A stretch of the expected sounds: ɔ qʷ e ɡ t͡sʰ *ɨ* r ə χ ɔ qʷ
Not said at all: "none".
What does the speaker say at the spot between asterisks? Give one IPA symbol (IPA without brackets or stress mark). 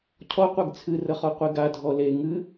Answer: ɨ